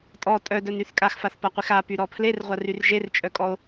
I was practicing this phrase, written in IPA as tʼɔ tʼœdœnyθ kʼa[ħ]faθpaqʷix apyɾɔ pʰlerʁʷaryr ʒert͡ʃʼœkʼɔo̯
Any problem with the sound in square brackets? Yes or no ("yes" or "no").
yes